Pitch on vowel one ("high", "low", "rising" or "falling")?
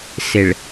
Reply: low